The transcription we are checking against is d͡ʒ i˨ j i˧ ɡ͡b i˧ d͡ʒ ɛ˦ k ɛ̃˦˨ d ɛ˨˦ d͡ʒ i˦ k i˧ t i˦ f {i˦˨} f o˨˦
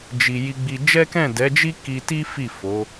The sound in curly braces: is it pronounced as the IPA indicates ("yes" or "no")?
yes